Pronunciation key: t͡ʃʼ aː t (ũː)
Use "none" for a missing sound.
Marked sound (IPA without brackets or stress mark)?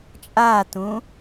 ũː